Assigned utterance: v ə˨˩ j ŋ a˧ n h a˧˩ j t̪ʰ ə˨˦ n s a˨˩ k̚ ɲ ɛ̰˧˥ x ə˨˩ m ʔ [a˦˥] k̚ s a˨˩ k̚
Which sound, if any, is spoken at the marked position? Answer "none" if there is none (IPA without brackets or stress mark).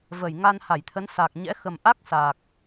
a˦˥